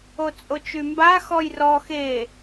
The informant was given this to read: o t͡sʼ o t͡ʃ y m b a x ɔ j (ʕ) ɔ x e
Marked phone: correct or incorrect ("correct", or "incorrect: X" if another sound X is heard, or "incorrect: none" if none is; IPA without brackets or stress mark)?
incorrect: r